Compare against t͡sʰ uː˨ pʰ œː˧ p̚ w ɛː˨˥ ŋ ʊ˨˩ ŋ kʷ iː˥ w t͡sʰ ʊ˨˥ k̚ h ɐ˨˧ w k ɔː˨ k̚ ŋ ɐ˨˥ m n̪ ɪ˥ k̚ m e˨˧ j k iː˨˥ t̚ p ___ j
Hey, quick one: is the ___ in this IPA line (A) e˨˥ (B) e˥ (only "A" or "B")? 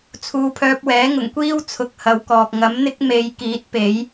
A